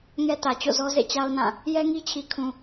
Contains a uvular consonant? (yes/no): no